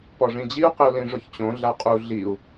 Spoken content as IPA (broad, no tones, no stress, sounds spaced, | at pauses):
p ɔ ʐ ĩ d͡ʑ i u̯ q ɪ u̯ l ĩ ʐ ʊ ç t͡ɕ õ ɮ a qʼ u ɮ i u̯